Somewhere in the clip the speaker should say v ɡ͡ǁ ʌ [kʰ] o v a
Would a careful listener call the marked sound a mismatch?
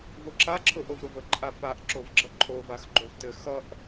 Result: yes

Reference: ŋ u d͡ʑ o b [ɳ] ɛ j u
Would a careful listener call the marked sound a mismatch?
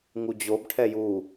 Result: yes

